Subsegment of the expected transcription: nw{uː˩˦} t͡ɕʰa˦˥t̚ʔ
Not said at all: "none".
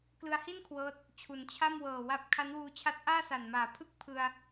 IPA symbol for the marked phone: uː˧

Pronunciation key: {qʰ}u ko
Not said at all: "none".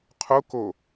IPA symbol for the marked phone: qʰ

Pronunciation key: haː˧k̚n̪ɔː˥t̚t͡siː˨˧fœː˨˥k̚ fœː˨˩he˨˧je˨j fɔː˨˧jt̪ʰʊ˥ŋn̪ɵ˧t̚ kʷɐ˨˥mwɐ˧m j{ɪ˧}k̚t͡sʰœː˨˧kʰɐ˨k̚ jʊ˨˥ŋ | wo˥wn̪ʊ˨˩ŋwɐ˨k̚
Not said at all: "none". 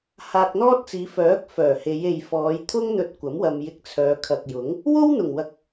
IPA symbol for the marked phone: ɪ˧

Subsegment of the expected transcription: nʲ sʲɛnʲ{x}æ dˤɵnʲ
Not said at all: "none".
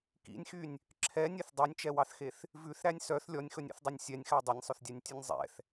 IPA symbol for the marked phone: x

